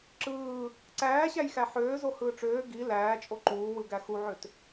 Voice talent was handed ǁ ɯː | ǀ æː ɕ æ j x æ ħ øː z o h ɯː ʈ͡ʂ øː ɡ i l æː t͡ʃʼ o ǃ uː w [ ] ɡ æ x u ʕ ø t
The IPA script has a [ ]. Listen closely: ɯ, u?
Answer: ɯ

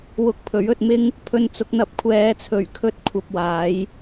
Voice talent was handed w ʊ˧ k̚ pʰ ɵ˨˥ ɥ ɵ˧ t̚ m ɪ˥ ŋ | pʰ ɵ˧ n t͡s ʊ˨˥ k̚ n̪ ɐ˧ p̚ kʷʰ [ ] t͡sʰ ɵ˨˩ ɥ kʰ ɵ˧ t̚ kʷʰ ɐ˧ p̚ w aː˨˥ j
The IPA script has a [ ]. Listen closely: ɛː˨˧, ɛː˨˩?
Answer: ɛː˨˧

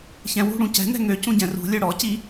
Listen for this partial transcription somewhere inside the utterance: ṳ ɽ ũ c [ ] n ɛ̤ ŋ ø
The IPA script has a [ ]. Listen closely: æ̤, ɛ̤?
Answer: ɛ̤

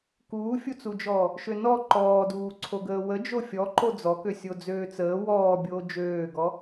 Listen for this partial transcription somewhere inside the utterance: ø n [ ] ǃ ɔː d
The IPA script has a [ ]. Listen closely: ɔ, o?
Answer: ɔ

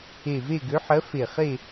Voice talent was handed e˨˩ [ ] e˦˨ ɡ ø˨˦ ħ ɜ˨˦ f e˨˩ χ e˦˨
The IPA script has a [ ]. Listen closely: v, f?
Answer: v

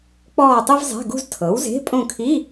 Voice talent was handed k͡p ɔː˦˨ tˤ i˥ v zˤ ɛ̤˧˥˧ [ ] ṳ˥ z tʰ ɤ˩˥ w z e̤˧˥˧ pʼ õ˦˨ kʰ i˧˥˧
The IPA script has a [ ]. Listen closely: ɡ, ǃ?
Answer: ɡ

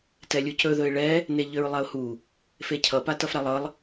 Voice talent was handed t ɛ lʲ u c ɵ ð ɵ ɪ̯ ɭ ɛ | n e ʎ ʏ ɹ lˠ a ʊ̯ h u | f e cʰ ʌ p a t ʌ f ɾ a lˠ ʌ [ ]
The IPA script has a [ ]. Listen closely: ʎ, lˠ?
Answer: lˠ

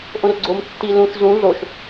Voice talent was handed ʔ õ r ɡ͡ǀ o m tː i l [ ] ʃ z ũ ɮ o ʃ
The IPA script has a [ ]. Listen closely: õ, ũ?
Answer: ũ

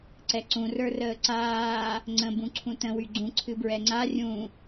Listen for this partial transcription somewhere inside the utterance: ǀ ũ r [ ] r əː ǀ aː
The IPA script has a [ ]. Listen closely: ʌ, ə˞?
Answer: ə˞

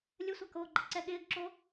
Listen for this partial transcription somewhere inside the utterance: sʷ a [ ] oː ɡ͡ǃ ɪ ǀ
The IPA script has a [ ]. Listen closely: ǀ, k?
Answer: k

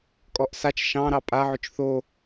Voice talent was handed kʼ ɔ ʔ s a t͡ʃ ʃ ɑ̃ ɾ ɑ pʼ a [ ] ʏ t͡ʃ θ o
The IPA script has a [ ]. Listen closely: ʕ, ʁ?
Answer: ʕ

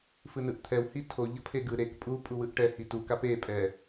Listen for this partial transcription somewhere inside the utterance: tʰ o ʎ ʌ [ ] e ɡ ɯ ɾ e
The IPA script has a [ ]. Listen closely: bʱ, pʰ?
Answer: pʰ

